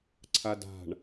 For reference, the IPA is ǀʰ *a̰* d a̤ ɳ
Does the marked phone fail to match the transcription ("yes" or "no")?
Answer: yes